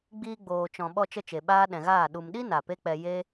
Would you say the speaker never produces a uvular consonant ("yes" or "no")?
yes